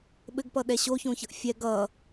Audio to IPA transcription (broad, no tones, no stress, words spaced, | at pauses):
ɓɘɡpʌɗɛ ɕoçõçʌʔ fʲɛɡ ʌ